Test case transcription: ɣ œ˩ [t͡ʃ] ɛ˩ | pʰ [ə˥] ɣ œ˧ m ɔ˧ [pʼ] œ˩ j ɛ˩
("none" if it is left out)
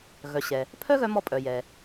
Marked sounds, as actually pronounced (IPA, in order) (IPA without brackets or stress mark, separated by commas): ɕ, œ˥, pʼ